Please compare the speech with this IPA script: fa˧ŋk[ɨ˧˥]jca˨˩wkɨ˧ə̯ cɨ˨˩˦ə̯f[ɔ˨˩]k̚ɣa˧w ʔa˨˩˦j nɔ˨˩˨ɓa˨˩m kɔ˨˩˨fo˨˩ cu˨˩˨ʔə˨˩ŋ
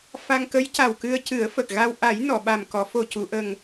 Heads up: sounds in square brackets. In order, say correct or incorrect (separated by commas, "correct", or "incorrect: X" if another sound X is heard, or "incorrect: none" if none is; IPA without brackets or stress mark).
incorrect: ə˧˥, incorrect: ə˨˩